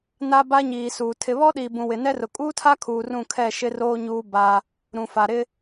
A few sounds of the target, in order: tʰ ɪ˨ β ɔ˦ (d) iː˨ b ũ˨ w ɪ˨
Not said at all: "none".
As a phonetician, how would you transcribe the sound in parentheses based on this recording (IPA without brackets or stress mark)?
ɗ